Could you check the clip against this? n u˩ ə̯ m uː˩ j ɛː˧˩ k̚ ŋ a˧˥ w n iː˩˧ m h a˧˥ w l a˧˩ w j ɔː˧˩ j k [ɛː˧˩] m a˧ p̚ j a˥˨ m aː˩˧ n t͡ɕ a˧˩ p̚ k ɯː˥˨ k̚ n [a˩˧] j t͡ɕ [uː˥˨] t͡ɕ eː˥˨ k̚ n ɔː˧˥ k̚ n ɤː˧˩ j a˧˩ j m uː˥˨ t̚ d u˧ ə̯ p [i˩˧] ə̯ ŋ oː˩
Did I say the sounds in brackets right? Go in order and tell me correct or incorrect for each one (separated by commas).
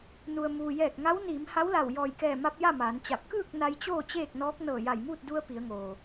correct, incorrect, incorrect, correct